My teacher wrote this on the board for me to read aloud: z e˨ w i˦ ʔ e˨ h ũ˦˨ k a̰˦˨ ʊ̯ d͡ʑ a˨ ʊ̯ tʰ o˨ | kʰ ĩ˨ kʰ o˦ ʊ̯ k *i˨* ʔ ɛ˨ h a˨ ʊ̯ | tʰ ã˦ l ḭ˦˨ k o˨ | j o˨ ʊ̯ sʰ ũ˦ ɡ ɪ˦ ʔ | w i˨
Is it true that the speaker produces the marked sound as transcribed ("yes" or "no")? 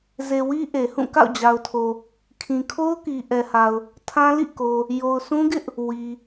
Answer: yes